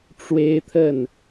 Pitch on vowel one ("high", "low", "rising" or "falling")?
high